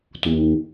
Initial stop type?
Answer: plain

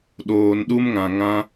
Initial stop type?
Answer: implosive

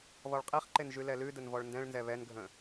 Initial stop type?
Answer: ejective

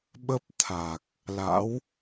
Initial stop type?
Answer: implosive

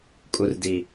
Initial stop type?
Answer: ejective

